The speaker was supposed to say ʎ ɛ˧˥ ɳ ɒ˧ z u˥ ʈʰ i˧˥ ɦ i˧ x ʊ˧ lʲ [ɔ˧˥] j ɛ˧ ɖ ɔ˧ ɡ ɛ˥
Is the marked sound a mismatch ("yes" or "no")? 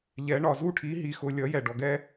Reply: yes